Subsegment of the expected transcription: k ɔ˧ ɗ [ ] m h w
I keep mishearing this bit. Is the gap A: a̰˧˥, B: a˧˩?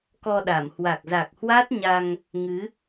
B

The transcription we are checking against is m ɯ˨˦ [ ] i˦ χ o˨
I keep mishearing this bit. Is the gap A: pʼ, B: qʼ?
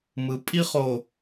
A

